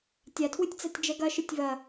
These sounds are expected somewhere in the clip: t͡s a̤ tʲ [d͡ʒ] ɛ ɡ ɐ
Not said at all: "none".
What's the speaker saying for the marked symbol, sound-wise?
d͡ʒ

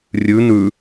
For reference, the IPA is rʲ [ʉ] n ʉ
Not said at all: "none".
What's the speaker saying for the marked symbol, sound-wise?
ʉ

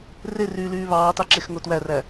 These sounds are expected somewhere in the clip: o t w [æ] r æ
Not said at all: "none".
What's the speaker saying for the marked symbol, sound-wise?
æ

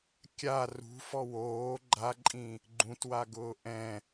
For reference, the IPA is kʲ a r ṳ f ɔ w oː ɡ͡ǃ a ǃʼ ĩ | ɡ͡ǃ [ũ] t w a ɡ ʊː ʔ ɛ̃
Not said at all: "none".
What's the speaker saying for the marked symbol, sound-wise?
ũ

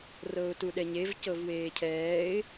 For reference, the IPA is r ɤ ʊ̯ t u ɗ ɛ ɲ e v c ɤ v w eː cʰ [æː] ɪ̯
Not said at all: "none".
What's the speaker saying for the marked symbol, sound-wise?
ɛː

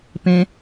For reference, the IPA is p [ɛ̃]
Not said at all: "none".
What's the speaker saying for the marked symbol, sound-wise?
ẽ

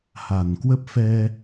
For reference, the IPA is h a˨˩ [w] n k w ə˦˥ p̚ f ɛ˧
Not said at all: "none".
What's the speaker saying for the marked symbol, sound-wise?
none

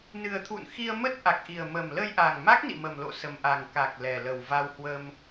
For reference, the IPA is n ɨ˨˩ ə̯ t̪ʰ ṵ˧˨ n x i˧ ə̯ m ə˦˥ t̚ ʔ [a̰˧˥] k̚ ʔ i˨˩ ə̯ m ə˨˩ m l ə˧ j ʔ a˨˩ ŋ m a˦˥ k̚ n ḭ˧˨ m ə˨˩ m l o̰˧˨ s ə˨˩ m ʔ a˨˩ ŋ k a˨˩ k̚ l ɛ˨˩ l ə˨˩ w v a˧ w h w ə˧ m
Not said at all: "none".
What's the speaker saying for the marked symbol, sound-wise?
a˨˩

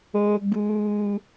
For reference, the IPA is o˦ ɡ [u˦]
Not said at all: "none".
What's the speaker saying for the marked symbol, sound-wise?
uː˦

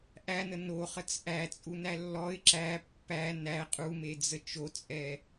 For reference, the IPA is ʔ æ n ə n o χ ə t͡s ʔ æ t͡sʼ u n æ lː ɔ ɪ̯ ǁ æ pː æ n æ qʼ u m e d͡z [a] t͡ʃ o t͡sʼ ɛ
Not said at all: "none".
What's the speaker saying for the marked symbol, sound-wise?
ə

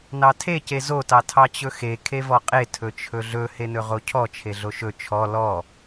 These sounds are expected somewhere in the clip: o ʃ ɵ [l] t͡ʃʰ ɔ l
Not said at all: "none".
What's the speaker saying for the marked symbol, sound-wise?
none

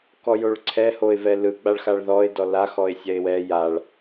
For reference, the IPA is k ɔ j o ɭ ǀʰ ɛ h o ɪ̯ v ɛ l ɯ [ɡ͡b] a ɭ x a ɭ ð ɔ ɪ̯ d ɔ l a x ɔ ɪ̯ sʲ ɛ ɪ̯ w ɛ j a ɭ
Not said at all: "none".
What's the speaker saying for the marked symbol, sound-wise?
ɡ͡b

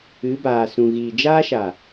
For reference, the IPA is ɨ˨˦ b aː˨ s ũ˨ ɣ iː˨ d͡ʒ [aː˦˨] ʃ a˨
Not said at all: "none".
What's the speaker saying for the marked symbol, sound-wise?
aː˦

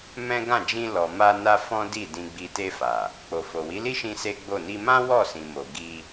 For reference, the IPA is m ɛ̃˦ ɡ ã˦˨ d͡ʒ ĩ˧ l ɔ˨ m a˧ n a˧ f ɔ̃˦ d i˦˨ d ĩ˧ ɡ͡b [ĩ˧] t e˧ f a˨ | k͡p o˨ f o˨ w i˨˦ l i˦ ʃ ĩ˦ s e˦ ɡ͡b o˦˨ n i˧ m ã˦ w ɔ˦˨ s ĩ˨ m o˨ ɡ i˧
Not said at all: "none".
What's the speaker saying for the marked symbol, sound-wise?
i˧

